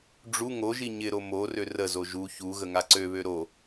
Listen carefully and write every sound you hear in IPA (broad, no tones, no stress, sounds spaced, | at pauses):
ɖ͡ʐ u ŋ o ʒ i ɲ ɪ ɾ o m o r ø r ə z o ʒ u ç u ɣ ə ŋ a ǀ ø β ø ɾ o